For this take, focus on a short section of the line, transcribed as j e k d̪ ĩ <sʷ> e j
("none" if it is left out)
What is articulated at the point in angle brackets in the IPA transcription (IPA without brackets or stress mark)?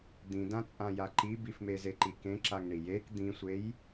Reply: sʷ